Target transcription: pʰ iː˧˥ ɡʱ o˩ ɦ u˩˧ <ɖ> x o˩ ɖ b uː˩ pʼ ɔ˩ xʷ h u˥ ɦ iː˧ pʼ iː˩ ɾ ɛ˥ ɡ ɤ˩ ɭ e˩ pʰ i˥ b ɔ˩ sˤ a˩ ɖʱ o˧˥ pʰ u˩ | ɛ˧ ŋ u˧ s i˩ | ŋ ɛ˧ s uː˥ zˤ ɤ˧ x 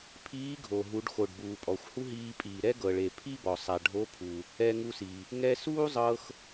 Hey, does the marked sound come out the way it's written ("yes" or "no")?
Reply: yes